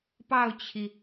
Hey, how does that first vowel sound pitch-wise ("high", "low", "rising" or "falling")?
falling